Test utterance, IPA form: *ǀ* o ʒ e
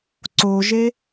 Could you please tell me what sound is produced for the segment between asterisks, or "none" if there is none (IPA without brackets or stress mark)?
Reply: ǀ